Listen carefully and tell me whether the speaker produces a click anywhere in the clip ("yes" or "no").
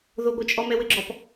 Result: yes